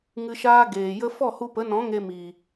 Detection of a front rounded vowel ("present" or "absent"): absent